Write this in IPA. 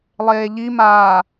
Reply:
lˠeːʎimaː

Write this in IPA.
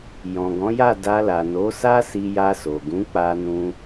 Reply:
jɔ̃˨ɡɔ̃˨˦ja˦˨ da˧la˨ no˨˦ sa˦si˧ ja˧so˨ɡũ˨˦ k͡pa˧nũ˧

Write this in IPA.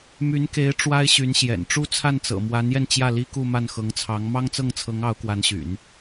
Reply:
my˧˥nke˧˥ɪ̯ ʈ͡ʂwa˥ɪ̯ɕy˧˥nɕjɛ̰˨˩n ʈ͡ʂu˥t͡sʰa˥˩nt͡sɤ̰˨˩ mwa˧˥njɛ˧n t͡ɕjä˥˩ li˥ku˥˧ma˥˩n xɤ˧˥ŋt͡sʰɑ˧˥ŋ mɑ˥ŋt͡sɤ˥˩ŋt͡sʰɤ˧˥ŋ ɑ˧˥ʊ̯kwa˧˥nɕy̰˨˩˦n

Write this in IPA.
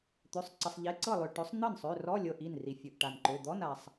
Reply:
t̪ø˩˧˩sˤǀə˩˧˩sˤ ʎe˩˧˩ǀɤ˥˩lˠø˩ ʈɵ˩˥sˤ n̪ɤ˥˩nsˤø˩˧˩ rɔ˧˥˧lʲɤ˩˧˩ʔ i˥˩n ri˩fʲɵ˩˧˩ʔʈa˩nǃø˩˧˩ d̪ɔ˧˥˧na˩sˤ

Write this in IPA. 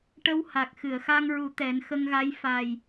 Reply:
ʈə˧wha˨˩k̚ xɨ˨˩˨ə̯xa˧ŋɹu˨˩˦ t̪ɛ˨˩˦nxə˧ŋɣa˧˥j fa˨˩j

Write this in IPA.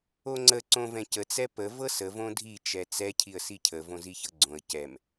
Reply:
oŋ͡ǀə ǀõvɛ̃cə t͡sɛpə vɤsə võdʱi t͡ʃɛt͡sɛ cʰiə̯sicʰə võziçɤɡ͡ǀõə̯ cɛm

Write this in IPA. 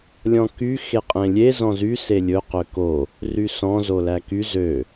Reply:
lʲɔ̃ky xeqʼẽlʲe zɔ̃zy selʲɵ qøko | rysɔ̃ zolæky zø

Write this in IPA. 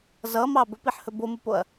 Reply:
zʌmɑ bɵpiħhɵ bomupoɐ̯

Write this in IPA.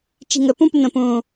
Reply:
t͡ʃi̤ŋə pũpən̪ə̃ pũ

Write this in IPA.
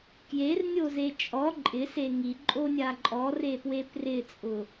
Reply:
kjernʲoze t͡ʃʼɔ ǃʼɪse ŋiǃʼonʲa ǃʼɔrepwe prɪt͡sʼʊ

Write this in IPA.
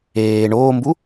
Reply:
eː ɳoːmbu

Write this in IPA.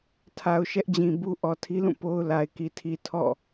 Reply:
tʰa˨ʊ̯ʃɛ˦ʔd͡ʑĩ˨bu˦ ʔɔ˨tʰi˦lũ˦˨ po˦ʊ̯ la˨ɪ̯ki˨tʰi˨ tʰɔ̰˦˨

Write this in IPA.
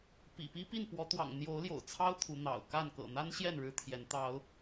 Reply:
pḭ˨˩pi˦ pi˥˨npwɔ˨˦t̪wɑ̰˨˩ŋ n̪jo˨˦ʊ̯ljo̰˨˩ʊ̯t͡sʰɑ˦ʊ̯ t̪ʰu˨˦n̪ɑ̰˨˩ʊ̯ ka˥˨n kɤ̰˨˩n̪a˦nɕjɛ˥˨n ɻɻ̩˦t̪ʰjɛ˨˦nt̪ɑ˨˦ʊ̯

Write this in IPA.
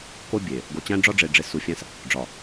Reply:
ko˦bʲe˨ | ɡo˨t͡ɕæ̃˦ɖ͡ʐɒ˦ɖ͡ʐe˨ ɖ͡ʐe˨ su˨fʲæ̃˦s | ɖ͡ʐɒ˨

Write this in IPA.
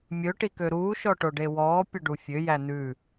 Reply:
mʲɵ ʈikøɾuː ʃɔʈoɖewɔː pʲɵɖufʲø jæn̪ʉ

